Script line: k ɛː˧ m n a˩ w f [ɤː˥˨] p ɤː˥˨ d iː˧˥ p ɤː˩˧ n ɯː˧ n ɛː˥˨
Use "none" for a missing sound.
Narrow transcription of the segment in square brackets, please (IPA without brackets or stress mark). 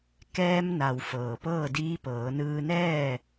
ɤː˩